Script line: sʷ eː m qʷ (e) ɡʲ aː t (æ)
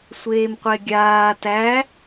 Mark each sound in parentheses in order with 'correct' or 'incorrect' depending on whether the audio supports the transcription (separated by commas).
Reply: correct, correct